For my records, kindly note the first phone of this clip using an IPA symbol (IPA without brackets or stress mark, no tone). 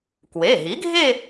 k